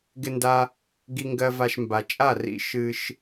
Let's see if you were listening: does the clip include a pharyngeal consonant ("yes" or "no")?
no